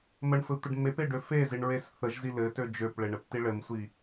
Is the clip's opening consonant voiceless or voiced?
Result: voiced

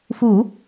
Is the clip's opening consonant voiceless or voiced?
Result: voiceless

